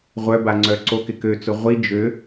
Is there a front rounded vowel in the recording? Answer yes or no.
yes